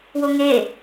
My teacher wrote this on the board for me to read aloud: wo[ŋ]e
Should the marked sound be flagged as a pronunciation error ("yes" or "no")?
no